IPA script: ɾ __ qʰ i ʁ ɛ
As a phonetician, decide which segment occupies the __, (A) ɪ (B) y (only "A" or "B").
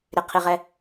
A